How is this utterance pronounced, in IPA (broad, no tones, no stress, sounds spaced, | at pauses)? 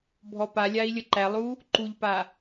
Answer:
bʱ ɔ p a lʲ a i̯ lʲ ə ǃ æ lˠ u | ǃ u ʎ p a